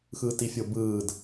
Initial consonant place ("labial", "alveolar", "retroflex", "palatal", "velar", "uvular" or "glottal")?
velar